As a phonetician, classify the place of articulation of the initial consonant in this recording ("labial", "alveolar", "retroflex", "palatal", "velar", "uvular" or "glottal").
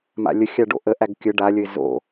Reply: labial